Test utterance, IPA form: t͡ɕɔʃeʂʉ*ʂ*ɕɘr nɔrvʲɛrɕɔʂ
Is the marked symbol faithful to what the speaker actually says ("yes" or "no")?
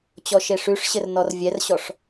yes